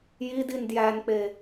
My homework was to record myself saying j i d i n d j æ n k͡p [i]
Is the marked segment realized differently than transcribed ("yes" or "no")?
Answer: yes